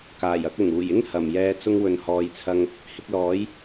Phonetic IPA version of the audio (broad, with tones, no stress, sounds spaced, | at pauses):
k aː˨˩ j ɐ˧ k̚ ʊ˨˩ ŋ uː˨˩ j ɪ˥ ŋ h ɐ˨˩ m j ɛː˧ t͡s ʊ˧ ŋ w ɵ˨ n h ɔː˨˧ j t͡sʰ ɐ˧ ŋ | h ɪ˧ k̚ l ɔː˨˥ j